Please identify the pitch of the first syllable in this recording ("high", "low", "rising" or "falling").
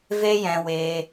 high